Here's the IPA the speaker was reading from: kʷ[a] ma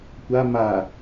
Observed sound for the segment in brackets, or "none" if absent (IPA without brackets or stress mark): a